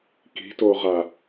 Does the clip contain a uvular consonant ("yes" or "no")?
yes